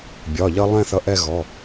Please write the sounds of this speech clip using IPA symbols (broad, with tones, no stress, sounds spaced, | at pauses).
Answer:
bʲ ɒ˩˧˩ ʎ ʌ˧ lˠ ɛ̃˥˧ θ ʌ˨˥ ʔ ɛ˥˧ ɣ ɔ˩˧˩